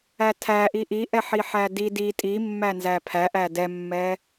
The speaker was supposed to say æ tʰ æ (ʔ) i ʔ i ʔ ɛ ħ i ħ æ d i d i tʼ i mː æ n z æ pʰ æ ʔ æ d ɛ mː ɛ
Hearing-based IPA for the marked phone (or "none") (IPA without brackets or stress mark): ʔ